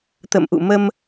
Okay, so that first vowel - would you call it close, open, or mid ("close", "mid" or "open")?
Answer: mid